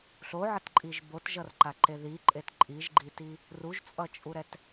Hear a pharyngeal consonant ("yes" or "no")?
yes